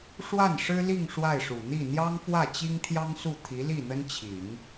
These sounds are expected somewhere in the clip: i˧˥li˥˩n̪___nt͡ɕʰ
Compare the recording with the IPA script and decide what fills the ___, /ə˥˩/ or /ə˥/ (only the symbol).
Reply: ə˥